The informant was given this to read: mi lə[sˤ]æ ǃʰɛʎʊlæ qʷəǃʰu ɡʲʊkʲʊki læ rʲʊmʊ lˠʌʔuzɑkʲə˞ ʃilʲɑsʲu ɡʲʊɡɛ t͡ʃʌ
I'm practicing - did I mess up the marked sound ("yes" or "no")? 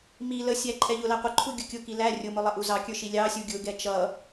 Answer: yes